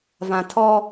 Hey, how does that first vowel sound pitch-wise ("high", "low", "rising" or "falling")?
low